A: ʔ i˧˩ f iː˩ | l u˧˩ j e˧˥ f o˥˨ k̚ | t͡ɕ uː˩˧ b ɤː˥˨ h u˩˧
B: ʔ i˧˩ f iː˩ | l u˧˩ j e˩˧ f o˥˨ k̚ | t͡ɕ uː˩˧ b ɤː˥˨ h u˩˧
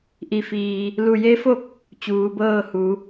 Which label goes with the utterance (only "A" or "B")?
A